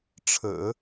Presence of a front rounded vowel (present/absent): absent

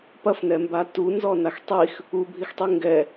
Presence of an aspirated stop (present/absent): absent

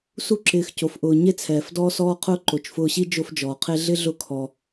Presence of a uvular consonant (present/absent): present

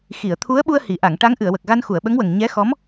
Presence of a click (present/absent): absent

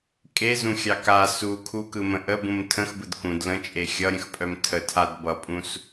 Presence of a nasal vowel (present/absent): present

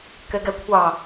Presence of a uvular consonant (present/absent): absent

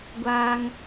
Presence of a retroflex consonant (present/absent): absent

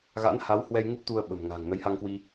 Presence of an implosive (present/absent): present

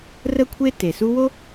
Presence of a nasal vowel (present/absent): absent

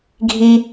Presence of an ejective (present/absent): absent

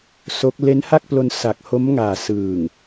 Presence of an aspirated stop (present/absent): absent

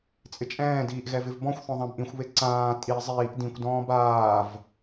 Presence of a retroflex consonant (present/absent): absent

